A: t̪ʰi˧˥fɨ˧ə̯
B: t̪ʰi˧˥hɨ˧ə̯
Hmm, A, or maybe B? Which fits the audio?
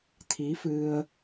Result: A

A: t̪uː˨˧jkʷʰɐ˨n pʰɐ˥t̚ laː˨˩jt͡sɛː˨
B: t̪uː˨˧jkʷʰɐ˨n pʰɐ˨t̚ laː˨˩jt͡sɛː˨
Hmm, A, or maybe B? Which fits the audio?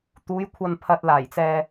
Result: B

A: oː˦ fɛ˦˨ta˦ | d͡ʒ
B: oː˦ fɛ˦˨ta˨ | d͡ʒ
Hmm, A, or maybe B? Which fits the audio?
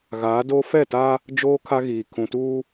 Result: A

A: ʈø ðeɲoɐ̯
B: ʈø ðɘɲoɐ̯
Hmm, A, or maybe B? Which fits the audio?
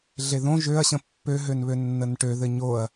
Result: B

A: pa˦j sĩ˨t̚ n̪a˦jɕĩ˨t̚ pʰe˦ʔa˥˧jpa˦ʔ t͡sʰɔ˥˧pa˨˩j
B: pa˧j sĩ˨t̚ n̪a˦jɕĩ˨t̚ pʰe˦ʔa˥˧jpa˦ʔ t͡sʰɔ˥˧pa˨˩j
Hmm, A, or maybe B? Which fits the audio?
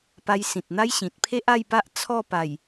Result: B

